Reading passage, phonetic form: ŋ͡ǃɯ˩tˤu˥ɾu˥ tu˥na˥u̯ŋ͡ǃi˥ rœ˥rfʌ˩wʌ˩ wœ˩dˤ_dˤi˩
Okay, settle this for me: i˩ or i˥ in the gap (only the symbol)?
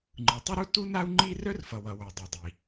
i˩